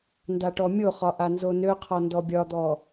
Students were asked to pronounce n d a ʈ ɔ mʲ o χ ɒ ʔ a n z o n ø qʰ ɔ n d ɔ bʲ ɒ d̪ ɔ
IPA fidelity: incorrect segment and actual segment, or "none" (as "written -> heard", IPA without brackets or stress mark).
none